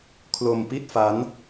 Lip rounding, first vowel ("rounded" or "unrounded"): rounded